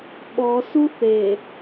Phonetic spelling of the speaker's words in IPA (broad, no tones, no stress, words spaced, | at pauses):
ɓɔ suθe